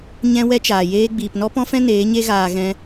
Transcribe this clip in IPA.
ɲɛ̃˧ wɛ˦t͡ʃaː˨ jeː˦ ɡ͡biː˨pnɔ˦pɔ̃˦fɛ̃˦ neː˨˦ɲe˦ɣaː˧ ɣɛ̃˦

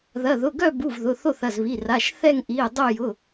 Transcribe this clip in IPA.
ðɐ˩˧˩ ðʊ˩˧˩ɡœ˦˨bu˩˧˩v ðʊ˩˧˩θo˦˨θɐ˩˧˩zβi˩˧˩ ra˩˧˩ʃ θɛ˦˨ŋ ʔi˩˧˩ə̯ dˤo˦˨jʊ˩˧˩

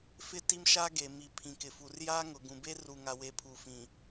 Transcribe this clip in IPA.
fɪ˦ti˦mʃa˦ɡe˨ mi˨ pʰĩ˨kɪ˨fu˨rjaː˦ ŋʊ˨ɡũ˨be˦ ru˨ŋa˨we˨ pʰu˨fĩ˨

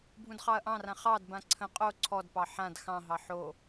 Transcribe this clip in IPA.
bʱũdχɑɐ̯ʔɑ̃rã χɑdbã ǀʰə̃ qʼo ǀʰɔdpɑ ħãd xɑ̃ɦɑ ħo

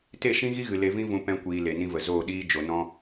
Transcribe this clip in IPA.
te˦˨ʃĩ˦ɣi˦ɣɨ˨ le˧vĩ˦vũ˧ pɛ̃˦kʷiː˧ le˨nĩ˧və˨ zo˦˨ɗiː˦ d͡ʒo˨nɔ̃˧

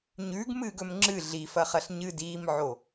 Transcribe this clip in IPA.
ɲʉːɡmɨːɡ ɵmŋ͡ǁɨ ɮifɐχɐɬ ɲɨdiːmʕo

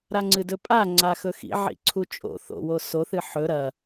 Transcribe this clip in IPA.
ɾaŋ͡ǀɨdɵpʼa ŋ͡ǀaxɵxḭ ʕḭǀʰut͡ʃʼo̰ θo̰wo soθɨ ħɵ ɾɐ

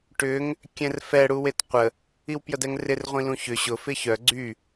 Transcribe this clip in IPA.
ʈʏŋ | kʲɛ̃rfɛ ɽuwetqʷə | iwpjədɛŋrɪr ʁʷĩlũçʏ ɕʊ fɪçœ ɡ͡ǀy

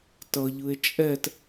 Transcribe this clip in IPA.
tʌʎɯe̯ t͡ʃʼɛt

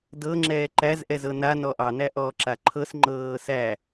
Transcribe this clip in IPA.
dɤŋ͡ǁɛː ǃæzʔɛzɤ nanɔ ʔɑnæʔɔːǁa ǃʰɤsŋ͡ǃɤː sæ

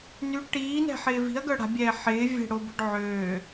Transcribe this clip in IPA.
ny ʈiːnɛ̤ħɪː vi̤ɐ̯ɡœ ɽa̤bʲɛː ħɪːvʲɛ̤ɽobʊɖ ʕøː

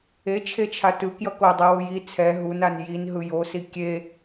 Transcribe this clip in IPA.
et͡ʃʰet͡ʃʰa tɯkjʌ kodˤewɯ ji t͡sʰɛ ɦunan jinɦɯ josi kʲe

